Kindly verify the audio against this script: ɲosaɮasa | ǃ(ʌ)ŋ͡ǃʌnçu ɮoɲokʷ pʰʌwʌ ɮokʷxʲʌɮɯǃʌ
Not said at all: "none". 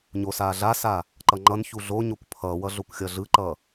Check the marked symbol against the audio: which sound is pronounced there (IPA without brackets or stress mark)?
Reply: ʌ